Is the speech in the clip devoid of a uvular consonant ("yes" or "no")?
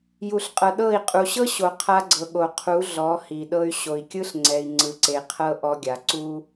no